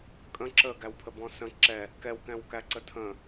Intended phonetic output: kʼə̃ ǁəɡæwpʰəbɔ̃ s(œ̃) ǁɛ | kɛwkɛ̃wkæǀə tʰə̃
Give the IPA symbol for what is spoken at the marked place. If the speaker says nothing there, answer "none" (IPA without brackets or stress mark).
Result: ə̃